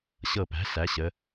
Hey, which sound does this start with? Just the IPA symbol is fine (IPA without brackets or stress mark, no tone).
ɕ